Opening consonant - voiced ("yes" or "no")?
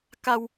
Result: no